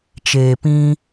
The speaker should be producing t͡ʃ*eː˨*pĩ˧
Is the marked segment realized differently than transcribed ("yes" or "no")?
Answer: no